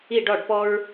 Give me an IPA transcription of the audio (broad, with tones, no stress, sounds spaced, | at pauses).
i˦˨ ɖ ɔ˦˨ ɖ p ɔ˦ ɹ